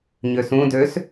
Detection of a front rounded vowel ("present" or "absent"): present